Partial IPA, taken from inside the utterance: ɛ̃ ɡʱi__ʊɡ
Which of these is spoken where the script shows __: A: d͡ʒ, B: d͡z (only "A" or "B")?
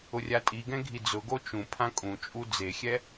B